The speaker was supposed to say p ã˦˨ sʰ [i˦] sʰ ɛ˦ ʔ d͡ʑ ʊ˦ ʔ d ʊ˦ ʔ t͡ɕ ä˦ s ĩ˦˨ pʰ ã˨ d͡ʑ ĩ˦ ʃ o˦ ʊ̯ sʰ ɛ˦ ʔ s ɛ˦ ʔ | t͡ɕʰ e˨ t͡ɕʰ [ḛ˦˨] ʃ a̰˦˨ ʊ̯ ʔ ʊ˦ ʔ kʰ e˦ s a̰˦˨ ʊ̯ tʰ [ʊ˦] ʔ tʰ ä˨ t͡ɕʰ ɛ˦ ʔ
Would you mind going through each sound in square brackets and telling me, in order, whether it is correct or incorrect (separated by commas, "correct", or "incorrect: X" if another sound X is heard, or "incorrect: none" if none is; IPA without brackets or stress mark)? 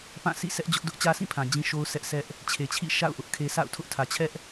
incorrect: ḭ˦˨, incorrect: ḭ˦˨, correct